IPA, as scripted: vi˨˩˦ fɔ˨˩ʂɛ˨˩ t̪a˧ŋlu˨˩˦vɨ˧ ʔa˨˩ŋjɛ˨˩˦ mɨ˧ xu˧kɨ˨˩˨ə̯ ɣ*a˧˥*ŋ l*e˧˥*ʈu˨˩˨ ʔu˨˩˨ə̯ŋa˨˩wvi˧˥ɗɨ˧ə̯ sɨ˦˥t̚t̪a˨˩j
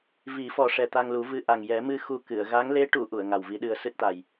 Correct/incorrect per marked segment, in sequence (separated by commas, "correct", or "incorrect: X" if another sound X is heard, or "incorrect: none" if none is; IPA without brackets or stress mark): correct, correct